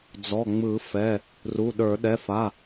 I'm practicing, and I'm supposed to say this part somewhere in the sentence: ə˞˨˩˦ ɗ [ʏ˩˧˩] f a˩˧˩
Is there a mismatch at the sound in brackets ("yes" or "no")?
yes